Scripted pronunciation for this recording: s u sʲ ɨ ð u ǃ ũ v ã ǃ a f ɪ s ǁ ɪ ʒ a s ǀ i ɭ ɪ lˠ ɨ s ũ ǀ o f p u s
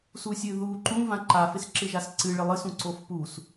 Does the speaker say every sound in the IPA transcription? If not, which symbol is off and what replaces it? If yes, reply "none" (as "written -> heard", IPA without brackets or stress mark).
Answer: i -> ɨ